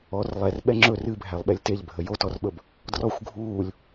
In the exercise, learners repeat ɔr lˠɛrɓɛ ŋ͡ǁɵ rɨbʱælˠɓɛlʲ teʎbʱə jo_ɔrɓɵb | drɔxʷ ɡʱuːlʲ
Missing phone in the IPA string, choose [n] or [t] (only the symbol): t